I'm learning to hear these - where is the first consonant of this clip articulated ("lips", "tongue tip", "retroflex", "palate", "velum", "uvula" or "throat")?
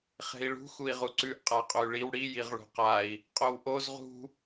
uvula